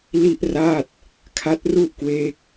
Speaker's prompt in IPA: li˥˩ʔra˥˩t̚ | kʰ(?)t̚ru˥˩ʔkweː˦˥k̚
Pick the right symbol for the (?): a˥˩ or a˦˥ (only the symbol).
a˦˥